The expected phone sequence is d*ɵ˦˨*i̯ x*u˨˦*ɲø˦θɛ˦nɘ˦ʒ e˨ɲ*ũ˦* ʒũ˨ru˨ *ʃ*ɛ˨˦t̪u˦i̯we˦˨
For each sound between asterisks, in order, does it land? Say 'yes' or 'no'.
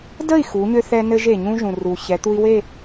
no, yes, yes, no

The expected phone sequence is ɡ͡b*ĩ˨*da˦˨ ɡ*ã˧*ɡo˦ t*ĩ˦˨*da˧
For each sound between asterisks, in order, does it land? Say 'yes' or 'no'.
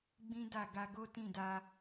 no, no, yes

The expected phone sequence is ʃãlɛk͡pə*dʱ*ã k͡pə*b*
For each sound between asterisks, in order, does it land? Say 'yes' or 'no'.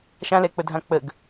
yes, no

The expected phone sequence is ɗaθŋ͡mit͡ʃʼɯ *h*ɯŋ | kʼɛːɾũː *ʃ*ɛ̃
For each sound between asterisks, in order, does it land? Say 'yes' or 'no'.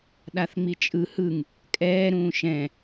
yes, yes

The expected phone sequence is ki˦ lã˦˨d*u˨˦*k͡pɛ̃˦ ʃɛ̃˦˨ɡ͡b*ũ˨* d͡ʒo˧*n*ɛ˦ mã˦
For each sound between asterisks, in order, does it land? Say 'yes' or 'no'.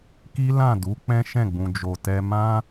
yes, no, no

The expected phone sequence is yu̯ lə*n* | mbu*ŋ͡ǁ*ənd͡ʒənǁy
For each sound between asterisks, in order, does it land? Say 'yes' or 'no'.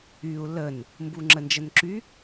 yes, yes

